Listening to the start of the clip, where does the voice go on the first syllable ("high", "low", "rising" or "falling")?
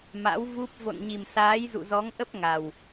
rising